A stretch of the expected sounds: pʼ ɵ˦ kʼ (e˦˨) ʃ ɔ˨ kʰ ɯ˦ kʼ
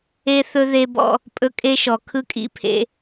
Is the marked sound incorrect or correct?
incorrect